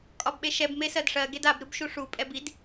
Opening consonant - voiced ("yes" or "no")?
no